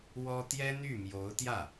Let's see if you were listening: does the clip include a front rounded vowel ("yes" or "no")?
yes